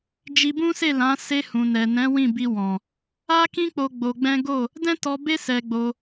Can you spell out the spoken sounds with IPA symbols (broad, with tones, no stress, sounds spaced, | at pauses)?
d͡ʒ i˧ b ũ˦ s e˦˨ l ã˨˦ s e˧ h ũ˨ n ɛ˨ n ɛ̃˨˦ w ĩ˦˨ b i˧ w ɔ̃˨ | a˦ k ĩ˦ k͡p o˧ ɡ͡b o˧ ɡ͡b ɛ̃˦ ɡ o˦˨ | d ɛ̃˦ t ɔ˧ b e˦ s ɛ˧ ɡ͡b o˧